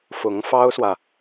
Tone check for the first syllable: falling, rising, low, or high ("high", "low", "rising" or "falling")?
rising